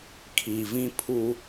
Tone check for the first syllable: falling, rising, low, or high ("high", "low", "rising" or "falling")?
low